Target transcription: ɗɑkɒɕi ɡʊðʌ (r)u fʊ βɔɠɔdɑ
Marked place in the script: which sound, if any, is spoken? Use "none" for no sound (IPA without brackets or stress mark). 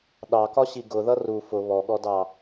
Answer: r